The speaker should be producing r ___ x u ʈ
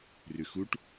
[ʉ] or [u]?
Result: ʉ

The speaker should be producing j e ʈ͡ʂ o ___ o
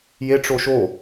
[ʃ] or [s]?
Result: ʃ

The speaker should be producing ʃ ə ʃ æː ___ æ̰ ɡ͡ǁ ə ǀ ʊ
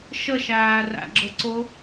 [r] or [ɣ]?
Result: r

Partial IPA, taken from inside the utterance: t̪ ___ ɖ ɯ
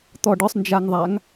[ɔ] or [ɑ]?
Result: ɔ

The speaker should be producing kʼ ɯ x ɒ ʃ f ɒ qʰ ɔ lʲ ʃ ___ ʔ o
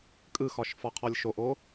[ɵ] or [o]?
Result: o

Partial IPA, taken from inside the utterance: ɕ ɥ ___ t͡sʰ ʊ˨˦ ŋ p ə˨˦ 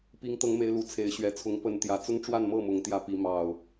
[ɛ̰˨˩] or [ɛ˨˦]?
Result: ɛ˨˦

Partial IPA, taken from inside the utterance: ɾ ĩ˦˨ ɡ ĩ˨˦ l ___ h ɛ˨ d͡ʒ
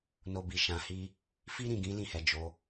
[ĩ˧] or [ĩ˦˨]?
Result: ĩ˦˨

